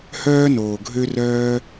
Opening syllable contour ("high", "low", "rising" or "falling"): high